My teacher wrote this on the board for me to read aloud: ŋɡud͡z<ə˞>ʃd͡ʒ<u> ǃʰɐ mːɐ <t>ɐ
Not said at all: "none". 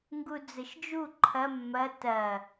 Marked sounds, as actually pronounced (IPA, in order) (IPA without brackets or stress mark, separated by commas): ə, u, t